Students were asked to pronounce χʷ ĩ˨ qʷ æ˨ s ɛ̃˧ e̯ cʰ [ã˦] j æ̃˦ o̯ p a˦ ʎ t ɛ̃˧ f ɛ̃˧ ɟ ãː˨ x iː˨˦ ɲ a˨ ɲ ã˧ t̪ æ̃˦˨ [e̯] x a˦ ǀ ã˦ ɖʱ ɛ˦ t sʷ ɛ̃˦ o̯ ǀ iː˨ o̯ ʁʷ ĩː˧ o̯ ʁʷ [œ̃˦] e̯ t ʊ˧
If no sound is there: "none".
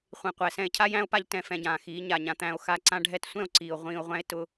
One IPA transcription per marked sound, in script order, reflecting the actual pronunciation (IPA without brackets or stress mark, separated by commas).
a˦, o̯, æ̃˦